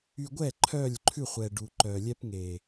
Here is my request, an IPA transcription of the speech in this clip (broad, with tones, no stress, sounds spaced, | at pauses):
y˧ ɡʷ ɛ˦˨ ǃʰ œ˦˨ lʲ ǃʰ ʉ˦˨ χʷ ɛ˨ ɖ u˨ ǃ œ˨ lʲ ɛ˦ p ŋ e˨